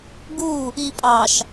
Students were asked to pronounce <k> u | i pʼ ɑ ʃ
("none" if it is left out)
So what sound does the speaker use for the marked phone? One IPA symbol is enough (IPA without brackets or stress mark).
ɡ